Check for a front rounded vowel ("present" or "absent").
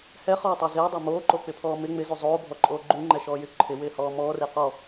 present